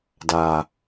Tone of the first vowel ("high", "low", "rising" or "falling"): low